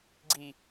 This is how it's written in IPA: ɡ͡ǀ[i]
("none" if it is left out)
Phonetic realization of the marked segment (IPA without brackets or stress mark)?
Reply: i